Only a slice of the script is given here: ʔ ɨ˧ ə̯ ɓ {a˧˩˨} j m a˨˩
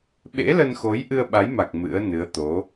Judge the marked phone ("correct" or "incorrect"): incorrect